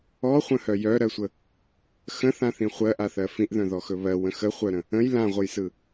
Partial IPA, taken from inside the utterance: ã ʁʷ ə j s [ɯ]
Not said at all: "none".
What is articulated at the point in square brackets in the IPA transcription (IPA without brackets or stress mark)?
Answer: ɯ